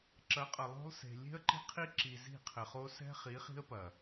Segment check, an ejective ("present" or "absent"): present